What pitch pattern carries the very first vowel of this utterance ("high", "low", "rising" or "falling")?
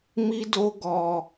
high